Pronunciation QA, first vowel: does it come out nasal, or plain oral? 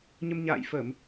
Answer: oral